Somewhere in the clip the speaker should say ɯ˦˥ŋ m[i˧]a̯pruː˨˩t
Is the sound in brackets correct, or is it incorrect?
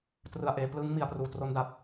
incorrect